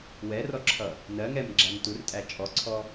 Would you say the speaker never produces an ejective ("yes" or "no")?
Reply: no